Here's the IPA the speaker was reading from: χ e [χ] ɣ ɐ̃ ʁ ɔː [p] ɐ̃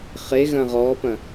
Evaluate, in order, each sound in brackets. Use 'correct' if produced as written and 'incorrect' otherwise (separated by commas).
incorrect, correct